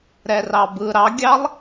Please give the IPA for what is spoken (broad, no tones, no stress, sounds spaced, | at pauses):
ɾ ɛ r ɑ b ɯ ɾ ɑ ɡʲ ɑ lˠ